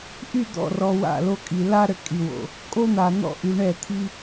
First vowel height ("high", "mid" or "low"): high